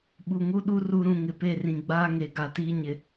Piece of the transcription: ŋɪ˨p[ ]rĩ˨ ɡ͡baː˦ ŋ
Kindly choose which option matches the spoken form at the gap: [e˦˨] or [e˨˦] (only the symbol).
e˦˨